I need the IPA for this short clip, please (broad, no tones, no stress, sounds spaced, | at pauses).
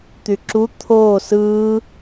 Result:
t̪ y ǁ u t̪ʰ oː s ɯː